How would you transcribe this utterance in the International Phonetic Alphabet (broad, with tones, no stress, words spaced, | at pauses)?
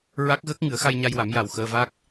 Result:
ɹa˦˥k̚ɣəː˦˥k̚ ŋɨ˨˩˦ə̯xa˧jɲa˧jwa˨˩˦m ja˨˩wxəː˧va˦˥k̚